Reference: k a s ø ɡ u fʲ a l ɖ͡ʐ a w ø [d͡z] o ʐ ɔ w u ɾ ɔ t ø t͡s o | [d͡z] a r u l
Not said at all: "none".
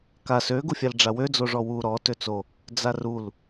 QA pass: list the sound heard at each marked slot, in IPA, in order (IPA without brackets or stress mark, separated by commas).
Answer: d͡z, d͡z